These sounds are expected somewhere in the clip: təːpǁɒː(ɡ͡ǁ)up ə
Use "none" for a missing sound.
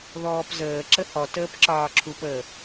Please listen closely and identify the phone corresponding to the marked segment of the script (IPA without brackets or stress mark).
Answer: ǁʰ